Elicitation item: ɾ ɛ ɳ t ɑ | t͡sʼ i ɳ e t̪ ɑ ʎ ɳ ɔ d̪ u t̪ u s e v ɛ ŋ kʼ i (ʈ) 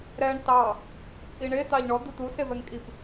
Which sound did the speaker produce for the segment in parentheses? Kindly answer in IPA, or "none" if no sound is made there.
p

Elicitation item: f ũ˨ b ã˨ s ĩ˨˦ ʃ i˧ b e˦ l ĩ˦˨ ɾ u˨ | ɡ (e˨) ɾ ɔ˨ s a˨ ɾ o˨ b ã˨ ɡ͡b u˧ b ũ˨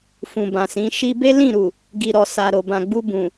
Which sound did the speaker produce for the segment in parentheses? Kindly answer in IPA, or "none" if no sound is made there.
i˨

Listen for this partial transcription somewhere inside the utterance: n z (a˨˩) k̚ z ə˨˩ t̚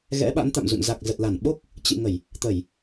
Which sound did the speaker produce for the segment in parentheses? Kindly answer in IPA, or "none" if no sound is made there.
a˨˩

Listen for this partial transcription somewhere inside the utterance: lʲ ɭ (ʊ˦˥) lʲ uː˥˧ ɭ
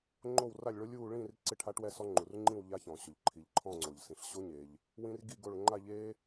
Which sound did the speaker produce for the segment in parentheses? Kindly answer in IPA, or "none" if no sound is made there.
ʊ˦˥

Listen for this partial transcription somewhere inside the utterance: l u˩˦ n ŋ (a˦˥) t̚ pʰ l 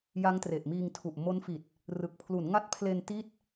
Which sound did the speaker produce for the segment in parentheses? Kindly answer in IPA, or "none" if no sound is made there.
a˦˥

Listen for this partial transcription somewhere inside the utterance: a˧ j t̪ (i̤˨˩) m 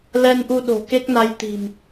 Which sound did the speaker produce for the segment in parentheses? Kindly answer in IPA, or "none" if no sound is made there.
i̤˨˩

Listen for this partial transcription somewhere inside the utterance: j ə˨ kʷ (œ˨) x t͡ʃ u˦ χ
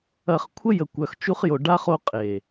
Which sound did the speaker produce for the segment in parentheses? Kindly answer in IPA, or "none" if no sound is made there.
œ˨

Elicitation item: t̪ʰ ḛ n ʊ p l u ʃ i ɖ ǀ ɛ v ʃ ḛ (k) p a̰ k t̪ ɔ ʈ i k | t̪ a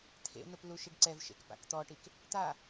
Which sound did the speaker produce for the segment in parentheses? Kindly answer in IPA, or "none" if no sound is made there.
k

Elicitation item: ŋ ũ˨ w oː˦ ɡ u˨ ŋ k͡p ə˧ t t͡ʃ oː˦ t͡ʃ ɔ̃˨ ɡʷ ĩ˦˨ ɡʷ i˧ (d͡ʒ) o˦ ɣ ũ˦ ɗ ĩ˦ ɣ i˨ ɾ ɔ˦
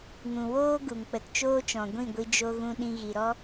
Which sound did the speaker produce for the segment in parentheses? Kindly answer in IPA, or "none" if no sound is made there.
d͡ʒ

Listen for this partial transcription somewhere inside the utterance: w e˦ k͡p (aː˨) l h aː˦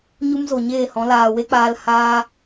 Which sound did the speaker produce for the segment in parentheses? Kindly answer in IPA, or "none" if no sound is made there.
aː˧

